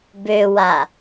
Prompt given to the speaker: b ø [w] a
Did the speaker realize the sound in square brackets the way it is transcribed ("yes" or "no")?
yes